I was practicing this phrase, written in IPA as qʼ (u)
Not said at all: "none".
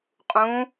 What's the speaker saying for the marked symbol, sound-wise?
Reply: ũ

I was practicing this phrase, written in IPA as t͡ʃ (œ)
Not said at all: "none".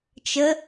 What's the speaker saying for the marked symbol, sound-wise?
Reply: ə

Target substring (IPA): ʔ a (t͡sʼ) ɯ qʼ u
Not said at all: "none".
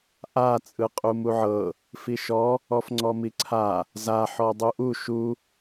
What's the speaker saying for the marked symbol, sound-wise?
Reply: t͡sʼ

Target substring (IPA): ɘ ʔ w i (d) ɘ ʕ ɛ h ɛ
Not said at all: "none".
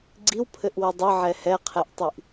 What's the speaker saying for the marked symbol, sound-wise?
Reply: dˤ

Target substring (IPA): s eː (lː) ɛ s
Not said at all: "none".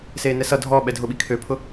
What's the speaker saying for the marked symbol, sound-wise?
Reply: n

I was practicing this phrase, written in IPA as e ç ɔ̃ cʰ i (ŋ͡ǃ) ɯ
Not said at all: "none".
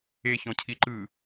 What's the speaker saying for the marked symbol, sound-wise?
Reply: ǃ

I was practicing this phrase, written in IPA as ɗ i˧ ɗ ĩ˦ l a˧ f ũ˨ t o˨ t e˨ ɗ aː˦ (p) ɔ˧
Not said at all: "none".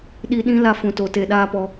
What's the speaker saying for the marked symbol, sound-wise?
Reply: p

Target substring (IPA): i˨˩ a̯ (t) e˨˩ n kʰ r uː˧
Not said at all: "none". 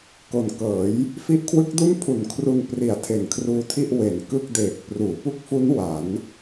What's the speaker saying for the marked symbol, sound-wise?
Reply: tʰ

